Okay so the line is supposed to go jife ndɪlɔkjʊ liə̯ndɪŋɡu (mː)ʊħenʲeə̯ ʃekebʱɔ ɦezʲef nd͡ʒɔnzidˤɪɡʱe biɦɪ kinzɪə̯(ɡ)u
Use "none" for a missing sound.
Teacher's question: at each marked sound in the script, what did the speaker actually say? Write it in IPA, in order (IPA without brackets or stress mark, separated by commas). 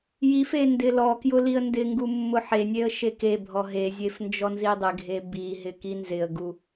mː, ɡ